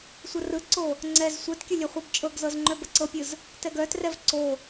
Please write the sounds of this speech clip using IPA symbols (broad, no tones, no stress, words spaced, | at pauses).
sʷərɯǀo | ŋ͡ǀɛz sʷɛtkʲə lʲɛχʷœbt͡ʃʼɤɡzɤz ŋ͡ǃœbəǀɤpʲɯz | tɛɡœtrɛv ǀo